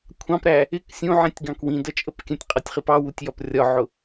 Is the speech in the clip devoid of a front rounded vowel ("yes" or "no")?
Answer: yes